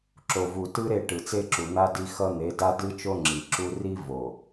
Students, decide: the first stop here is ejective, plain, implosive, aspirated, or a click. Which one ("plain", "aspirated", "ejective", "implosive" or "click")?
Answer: click